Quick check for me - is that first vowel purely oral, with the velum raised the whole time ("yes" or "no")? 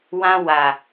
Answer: no